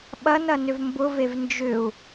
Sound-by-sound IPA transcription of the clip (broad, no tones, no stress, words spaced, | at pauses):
ɓɐnɐ nʏvmbʊvev nd͡ʒʏu̯